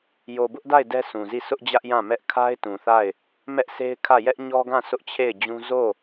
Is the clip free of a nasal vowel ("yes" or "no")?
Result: no